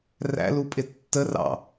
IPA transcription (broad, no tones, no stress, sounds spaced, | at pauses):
r æ̰ l u pʼ ɪ tː ə r ɑ̰